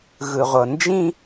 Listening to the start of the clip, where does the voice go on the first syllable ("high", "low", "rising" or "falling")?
low